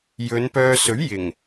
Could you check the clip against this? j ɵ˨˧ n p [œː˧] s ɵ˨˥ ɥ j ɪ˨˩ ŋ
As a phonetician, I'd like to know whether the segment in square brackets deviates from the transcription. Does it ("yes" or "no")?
no